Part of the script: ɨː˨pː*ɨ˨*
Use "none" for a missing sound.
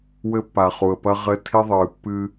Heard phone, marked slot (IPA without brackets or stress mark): ɨ˦